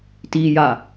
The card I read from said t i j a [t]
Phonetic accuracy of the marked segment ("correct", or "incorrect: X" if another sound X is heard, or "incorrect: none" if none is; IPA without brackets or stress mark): incorrect: none